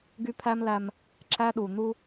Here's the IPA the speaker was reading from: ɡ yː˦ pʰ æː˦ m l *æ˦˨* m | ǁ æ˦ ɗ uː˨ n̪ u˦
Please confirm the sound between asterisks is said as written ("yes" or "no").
no